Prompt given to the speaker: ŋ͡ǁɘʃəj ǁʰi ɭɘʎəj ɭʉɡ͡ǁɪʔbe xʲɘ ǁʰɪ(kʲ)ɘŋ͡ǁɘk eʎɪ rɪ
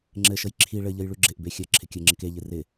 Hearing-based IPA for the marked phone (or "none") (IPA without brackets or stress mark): kʲ